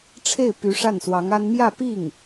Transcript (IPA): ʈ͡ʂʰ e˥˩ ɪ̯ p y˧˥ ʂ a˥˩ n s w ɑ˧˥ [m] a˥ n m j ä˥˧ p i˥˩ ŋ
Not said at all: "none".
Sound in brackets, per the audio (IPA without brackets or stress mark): ŋ